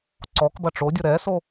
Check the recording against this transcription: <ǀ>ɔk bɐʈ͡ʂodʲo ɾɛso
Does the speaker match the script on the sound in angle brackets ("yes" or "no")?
yes